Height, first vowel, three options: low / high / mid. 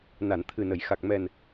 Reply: low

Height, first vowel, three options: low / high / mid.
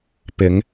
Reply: high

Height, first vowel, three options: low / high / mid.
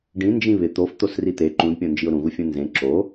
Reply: high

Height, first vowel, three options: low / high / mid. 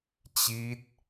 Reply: high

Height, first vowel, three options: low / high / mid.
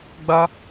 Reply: low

